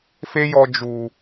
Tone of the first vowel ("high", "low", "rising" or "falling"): high